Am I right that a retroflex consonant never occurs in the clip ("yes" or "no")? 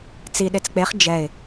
yes